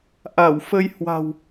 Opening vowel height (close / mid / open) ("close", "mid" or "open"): open